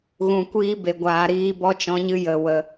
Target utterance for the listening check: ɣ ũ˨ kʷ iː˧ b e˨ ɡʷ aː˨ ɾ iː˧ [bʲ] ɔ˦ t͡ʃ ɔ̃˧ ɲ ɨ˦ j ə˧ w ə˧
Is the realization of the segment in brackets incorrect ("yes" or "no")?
yes